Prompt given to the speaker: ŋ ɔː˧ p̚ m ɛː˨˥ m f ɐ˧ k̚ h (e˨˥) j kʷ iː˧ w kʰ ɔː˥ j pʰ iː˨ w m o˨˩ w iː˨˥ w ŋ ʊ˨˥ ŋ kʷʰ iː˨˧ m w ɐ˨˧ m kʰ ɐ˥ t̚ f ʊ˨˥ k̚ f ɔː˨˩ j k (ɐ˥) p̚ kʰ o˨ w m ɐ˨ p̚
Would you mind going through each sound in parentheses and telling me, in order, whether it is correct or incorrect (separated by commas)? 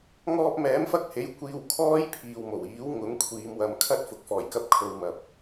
correct, incorrect